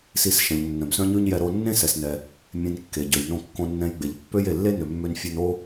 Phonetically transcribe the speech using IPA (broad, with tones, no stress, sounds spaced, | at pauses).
s i˧ s ʃ ɛ̃˩ ʎ nː œ̃˩ b s œ̃˥ ɲ ʉ˥ ɲ j ɛ˧ ɾ o˧ nː ẽ˥ s ɛ˩ s n ɛ˩ | mʲ ẽ˧ n kː e˩ ɟ ø˩ j n õ˧ kː õ˧ nː ɛ̃˧ j ɡ͡b e˩ ʎ pː ø˥ j e˩ lː e˥ n ø˩ mː ø˧ n fʲ œ˧ n o˥